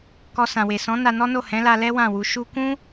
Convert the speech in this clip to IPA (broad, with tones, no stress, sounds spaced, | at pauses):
k ɔ˧ s ã˨ w e˨ s ɔ̃˨˦ n a˧ n ɔ˦ n o˦˨ h ɛ̃˨˦ l a˧ l ɛ˦ w ã˦˨ w u˧ ʃ u˧ k ũ˦